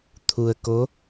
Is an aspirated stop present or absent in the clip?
present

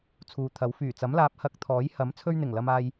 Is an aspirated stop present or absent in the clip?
present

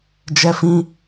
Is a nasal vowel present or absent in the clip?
present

